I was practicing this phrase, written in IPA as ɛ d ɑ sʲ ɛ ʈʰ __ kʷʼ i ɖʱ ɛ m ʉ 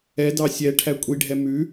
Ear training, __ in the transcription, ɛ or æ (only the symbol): æ